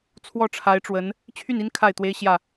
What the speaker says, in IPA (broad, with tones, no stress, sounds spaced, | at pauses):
t͡sʰ w ɔ˥˩ ʈ͡ʂʰ a˧˥ ɪ̯ ʈ͡ʂ w ə˧˥ n | t͡ɕʰ y˥˩ n i˥ n kʰ a˥˩ ɪ̯ t̪ w e˥ ɪ̯ ɕ j ä˥˩